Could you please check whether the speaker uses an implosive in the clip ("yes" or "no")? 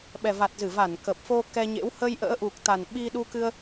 yes